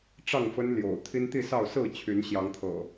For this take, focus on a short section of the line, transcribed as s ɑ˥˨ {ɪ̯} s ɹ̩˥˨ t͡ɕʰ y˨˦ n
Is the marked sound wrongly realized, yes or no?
yes